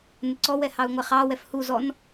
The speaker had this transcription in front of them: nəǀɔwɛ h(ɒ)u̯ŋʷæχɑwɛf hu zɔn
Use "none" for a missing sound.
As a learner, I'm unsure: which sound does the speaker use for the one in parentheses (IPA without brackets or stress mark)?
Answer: ɑ